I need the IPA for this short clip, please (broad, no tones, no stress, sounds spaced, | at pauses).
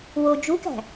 w o d͡ʒ u k æ̤